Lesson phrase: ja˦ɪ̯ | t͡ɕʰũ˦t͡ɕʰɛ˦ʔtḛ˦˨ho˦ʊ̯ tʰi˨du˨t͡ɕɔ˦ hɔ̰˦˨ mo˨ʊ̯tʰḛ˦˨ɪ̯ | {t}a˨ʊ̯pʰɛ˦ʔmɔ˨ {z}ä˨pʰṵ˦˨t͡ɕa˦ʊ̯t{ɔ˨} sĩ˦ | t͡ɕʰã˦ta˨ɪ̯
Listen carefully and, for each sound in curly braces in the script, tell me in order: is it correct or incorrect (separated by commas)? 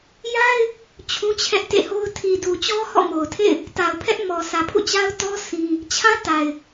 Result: correct, incorrect, incorrect